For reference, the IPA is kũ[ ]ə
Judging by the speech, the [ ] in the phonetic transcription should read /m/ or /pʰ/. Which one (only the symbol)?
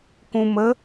m